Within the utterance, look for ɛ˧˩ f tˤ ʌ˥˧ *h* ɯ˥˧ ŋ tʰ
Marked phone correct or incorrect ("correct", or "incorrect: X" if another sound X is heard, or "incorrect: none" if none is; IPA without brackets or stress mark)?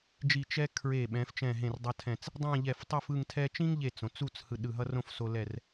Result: incorrect: f